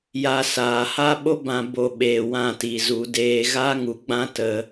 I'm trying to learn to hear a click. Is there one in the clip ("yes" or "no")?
no